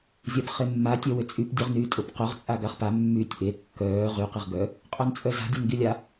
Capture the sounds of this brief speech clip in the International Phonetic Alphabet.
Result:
zʲapχemːa tʲœwʏt͡sʼyp dʲœʁnyːtʼʊp qʊʁ t͡sʼaɡaχpa mːyːtʲʔe kːœː ʁy qiʁɡœ | qʼœnt͡sʼœza̤ dʲanɡilʲa

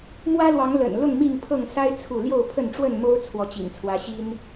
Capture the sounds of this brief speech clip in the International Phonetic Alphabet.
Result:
mwä˦lwɑ˨˦ŋ lə̰˨˩n lʊ˥˨ŋmi˥˨ŋpʰɤ˥˨ŋ sa˦ɪ̯ t͡sʰu˥˨ ljo˥˨ʊ̯pʰə˥˨nʈ͡ʂwə˥˨nmo˦ʊ̯ t͡sʰwɔ˨˦t͡ɕḭ˨˩ŋt͡sʰwä˨˦ ɕi˦n

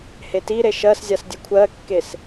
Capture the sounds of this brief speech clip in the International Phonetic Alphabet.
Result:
hetiɾe ʃɜszʲas dʲɨkʷʰɜkːes

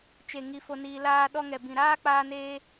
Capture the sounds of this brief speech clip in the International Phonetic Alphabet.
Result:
t͡ʃe˨ŋi˨ fo˧niː˧laː˦ ɗɔ˧ŋɛ˨bĩ˨ɾaː˦ k͡paː˦neː˦

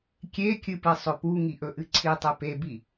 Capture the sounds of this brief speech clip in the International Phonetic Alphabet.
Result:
kʲekʲɨpɨ sˤɵpu ŋiʔɵʔɨǀʰi tˤepebi

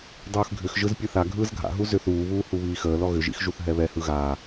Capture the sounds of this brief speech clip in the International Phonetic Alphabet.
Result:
dˤɯːxɡʱʏxʒɯz pʲɯθaɡʱɯːz ɡʱa̰ɦu zʏθ uːβuː huβiːxəːlɔ ɣʏʒḭx ʒuθɦɛβɛhɯ ɣaː

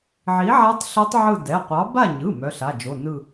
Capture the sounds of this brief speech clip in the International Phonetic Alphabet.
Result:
ʕi˨˥ʕa˦˥tˤ ɬœ˦˥tˤ ʕɯ˦˨ dɛ˩˧˩qʷɑ˨˥ ba˦˨ɲɯ˩˧˩ mœ˩˧˩ɬa˩˧˩d͡ʒo˩˧˩nɯ˦˨

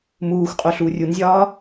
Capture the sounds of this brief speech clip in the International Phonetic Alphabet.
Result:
muːxʷqʼo ɬuːrʲunzʲɒː

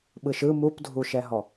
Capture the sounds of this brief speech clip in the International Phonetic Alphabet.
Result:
ɓɯʃɯ mupdʱuʃɛɦɔ

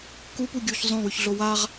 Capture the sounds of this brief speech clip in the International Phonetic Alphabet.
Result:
kupuɡʲuːç zˤõwʉçɮo waʁ

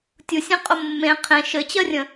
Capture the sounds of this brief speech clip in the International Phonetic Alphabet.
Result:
tʲusʲẽ qʼʊmːẽ qʰẽ ʃɘt͡ɕɜrʲə̃

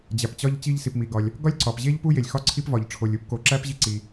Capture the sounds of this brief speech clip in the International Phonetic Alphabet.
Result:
d͡ʑæ˩pt͡ɕɒ˥ʎ t͡ɕi˥ʎsi˩pmi˩ɡɒ˩lʲ | ɡɒ˥lʲǀɒ˩pʑe˥ʎ pu˥je˩lʲ xɒ˥ǀʰi˥p vɒ˩ʎʈ͡ʂʰo˩lʲ u˥pko˩ǁæ˥p ʑi˥ǀi˩

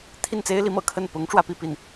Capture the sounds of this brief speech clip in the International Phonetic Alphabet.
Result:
t̪ʰi˥˩nt͡se˥ɪ̯li˧˥mɤ̰˨˩ kʰə˥˩n pʊ˧˥ŋ ʈ͡ʂwä˥pi˥˧pi˥˩n

